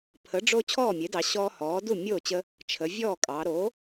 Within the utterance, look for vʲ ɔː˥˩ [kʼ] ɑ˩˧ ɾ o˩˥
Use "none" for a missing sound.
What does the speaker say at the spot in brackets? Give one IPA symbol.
kʼ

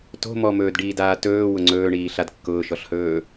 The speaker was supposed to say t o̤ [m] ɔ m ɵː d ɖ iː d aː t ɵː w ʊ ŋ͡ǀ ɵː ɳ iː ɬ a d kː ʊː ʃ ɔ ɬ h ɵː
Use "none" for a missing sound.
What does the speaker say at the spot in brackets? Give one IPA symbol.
m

